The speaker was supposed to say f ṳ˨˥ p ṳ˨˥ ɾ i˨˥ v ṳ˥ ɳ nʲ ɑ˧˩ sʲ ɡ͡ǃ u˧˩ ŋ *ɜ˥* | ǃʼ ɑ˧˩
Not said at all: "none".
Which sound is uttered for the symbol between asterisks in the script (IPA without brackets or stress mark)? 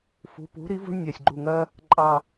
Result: ɜ˥